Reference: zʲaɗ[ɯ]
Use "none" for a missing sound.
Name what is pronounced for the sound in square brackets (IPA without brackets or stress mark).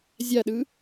ɯ